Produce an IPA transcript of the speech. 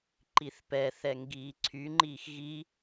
ǃiθpɛ θɛŋɡiːǀʰy ŋ͡ǃiːxɣi

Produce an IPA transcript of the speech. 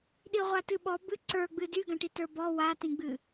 ɗiʁʷatɨɓɔ bɨ ǀə˞ɡ͡bɨ dyɡãʈi tə˞bɔ watĩɡ͡bɨ

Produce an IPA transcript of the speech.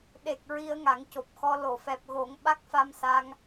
ɗe˨˩k̚ ɹi˧ə̯ŋa˨˩˦ŋco˨˩p̚xɔ˧ lo˨˩˨fɛ˨˩p̚ɣo˨˩˦ŋ ɓa˦˥k̚fa˧msa˧ŋ

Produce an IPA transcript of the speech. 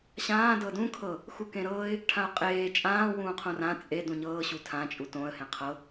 ɕãː dɤdũ kʰɤ | xukẽɾɤːɪ̯ | ʈʰãʊ̯qʼeː t͡ʃʼãːwũːqʰõ rã t͡sʼe dũɲɤːɕu tʰãt͡ʃʼu tõə̯hẽ qʰɤ

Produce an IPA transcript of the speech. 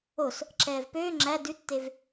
os | ǁɛːvpøː ŋ͡ǁæ dʉtːev

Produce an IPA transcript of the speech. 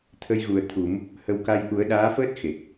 t̪ʰə˧jɣu˨˩ə̯ t̪ʰu˨˩˦m | hə˧w ka˧jʔu˨˩˦ə̯ ɗaː˧˥fəː˦˥t̚ xe˨˩k̚

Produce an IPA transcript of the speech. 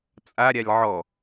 t͡sʼaɾʲalʲ ʕɔ

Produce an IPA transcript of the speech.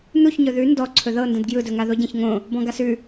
nuçɲɵ ðʉ ndɔǀʰɵ ðɤ ndə̃dɡjɯdɵŋa ðoɟə̃ç ŋõ | bɔ̃ɡasʉ

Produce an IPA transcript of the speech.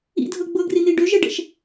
ḭdʱɤ ɡ͡bɤɡrin̪i ɖøʒɛɖɛ̰ʃ

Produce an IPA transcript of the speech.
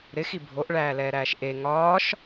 ɾɪxi bʱoʔɭæːlɛːɾæːʃ ʔe ŋɒːʃ

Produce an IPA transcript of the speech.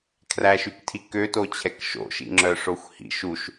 kʰræʃyktʰi køtot͡ɕʰɛk ʃo̰ʃḭŋ͡ǁœʂoxʷ hḭʃ uʃ

